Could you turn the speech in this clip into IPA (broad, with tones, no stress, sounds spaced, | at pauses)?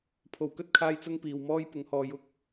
pʰ o˨˩ w k ɵ˥ t̚ kʰ aː˧ j t͡s ʊ˧ ŋ p iː˨ w m ɔː˥ j p ʊ˨˥ ŋ h ɔː˨˧ j ʊ˥ k̚